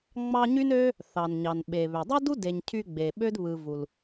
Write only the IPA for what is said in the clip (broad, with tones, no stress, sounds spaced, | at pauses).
ŋ͡m ɑ˦ ɲ y˥ n ø˥ | θ ɑ˩ n ɲ ɑ˩ n ɓ e˩ β ø˩ dˤ ɯ˥ d u˥ d e˨ ɲ cʰ y˦ ɡ͡b e˩ ɓ ø˥ d β ɯ˨ v u˩ l